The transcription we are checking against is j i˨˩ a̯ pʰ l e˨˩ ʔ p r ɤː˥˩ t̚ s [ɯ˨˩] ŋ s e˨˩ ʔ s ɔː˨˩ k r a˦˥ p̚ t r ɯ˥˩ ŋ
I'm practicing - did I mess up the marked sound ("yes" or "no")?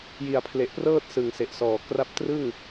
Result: no